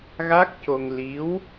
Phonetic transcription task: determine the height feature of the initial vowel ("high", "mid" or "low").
low